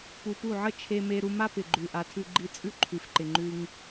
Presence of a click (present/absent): present